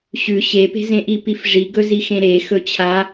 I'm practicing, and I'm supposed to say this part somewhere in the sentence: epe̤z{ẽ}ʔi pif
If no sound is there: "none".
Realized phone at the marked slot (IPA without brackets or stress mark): ẽ